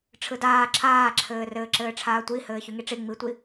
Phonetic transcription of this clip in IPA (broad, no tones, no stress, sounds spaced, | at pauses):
ʈ͡ʂʰ ɯ d aː ǁʰ aː ǁʰ ɘː r ɘː ǁ ɘː ʈ͡ʂʰ aː tʷ i h ɘː ç y ŋ i ʈ͡ʂ i ŋ͡m i tʷ i